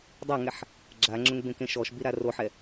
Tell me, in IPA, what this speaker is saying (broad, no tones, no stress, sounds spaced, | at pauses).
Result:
dˤ a ŋ ɛ ħ | ɡ͡ǁ a ŋ͡ǁ ʊ ŋ b ẽ k ẽ ʃ ɔ ʃ b i ɾ a r o ħ ɛ